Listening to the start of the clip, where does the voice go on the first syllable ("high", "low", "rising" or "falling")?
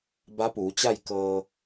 rising